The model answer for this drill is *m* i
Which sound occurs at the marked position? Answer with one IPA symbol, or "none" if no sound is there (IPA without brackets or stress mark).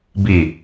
b